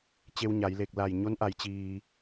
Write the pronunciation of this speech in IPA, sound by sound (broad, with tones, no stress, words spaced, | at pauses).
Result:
t͡ɕe˧wɲa˩˧j le˧˩k̚la˧˩j ɲo˧˥nʔa˩˧j t͡ɕiː˩